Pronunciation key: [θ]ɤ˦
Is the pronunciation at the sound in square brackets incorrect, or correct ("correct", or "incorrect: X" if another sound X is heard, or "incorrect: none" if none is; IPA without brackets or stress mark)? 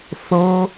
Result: correct